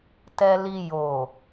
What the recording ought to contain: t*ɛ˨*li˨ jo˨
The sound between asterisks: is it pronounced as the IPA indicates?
yes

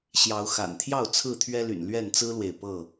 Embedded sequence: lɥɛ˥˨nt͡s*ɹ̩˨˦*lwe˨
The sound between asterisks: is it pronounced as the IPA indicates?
no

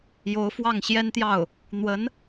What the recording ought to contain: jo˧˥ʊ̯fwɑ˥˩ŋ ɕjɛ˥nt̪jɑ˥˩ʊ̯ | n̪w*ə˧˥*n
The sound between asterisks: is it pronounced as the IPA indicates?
yes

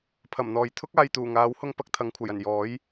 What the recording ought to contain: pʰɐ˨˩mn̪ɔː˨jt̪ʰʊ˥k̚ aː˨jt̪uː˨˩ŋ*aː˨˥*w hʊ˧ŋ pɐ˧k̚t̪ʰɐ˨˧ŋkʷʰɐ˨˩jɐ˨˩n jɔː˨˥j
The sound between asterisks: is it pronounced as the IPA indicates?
yes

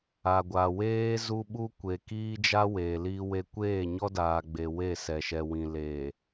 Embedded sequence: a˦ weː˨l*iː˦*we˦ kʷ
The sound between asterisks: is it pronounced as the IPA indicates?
yes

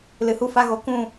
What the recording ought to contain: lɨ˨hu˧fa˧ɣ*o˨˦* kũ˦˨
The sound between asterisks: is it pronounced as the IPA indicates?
yes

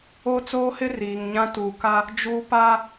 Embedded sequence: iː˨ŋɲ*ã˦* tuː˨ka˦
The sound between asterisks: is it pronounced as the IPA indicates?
yes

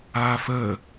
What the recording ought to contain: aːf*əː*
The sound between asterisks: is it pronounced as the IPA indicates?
yes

